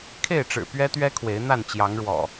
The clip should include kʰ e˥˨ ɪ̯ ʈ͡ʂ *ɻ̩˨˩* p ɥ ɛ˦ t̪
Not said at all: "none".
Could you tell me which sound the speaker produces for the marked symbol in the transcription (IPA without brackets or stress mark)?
ɻ̩˨˩